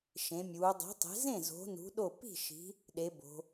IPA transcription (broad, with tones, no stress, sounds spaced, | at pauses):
ʃ ẽ˨˦ mʲ uː˨˦ dˤ e̤˨˦ tˤ e̤˨˦ z ẽ˥˨ z o̤˨˦ n ṳ˨˦ ɗ o˥˨ p i̤˥˨ ʃ i̤˨˦ | ɗ e˨˦ b o̤˨˦